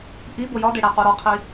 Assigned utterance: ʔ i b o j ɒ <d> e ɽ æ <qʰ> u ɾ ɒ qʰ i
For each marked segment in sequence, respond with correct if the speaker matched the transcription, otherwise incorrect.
correct, incorrect: q

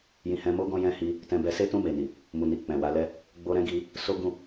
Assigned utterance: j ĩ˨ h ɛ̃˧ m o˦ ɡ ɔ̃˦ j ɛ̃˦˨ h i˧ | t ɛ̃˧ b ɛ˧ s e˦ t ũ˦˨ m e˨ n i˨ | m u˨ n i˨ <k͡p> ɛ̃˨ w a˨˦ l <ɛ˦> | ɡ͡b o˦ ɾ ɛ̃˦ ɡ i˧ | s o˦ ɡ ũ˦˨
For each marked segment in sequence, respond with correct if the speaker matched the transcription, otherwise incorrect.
correct, correct

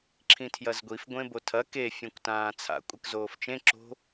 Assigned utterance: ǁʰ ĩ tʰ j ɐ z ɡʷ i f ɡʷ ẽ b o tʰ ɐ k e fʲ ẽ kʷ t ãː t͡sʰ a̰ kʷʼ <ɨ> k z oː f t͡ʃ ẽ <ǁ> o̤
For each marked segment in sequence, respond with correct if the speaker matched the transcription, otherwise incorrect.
correct, correct

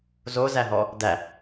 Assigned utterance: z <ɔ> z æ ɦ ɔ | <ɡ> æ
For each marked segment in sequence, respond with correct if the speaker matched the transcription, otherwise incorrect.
incorrect: o, incorrect: d

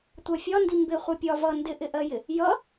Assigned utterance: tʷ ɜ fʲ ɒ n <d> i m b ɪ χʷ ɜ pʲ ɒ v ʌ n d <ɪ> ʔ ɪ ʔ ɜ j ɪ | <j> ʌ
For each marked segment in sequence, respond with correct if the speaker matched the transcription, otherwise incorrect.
correct, correct, correct

